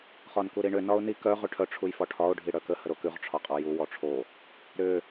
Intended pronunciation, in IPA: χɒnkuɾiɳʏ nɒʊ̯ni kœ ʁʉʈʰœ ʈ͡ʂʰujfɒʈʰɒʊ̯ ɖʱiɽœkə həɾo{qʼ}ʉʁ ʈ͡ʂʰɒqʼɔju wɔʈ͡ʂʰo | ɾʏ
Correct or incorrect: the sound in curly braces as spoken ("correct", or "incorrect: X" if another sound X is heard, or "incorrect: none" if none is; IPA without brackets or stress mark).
incorrect: k